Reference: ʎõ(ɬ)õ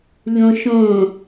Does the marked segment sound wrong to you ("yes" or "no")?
yes